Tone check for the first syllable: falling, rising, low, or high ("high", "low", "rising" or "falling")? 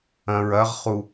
low